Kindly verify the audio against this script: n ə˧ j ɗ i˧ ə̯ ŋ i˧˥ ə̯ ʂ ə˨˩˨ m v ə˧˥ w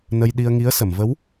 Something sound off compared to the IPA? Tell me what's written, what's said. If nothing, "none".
ʂ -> s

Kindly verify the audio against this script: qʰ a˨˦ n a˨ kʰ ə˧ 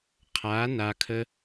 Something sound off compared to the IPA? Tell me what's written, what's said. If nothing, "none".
none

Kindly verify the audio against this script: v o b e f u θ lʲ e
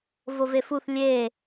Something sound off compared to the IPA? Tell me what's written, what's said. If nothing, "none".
b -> v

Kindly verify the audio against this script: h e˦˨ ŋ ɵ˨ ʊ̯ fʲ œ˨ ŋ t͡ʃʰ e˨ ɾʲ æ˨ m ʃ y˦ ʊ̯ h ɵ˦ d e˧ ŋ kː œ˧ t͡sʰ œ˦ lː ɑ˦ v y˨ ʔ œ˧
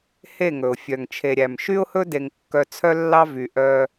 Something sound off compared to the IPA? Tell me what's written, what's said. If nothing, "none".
none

